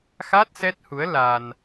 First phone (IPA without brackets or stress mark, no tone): x